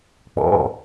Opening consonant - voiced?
no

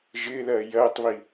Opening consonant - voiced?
yes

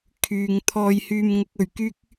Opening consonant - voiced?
no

